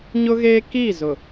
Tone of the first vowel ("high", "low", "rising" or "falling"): high